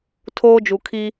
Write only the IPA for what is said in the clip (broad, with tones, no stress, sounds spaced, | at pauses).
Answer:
tʰ oː˦ d͡ʒ u˨ kʰ i˦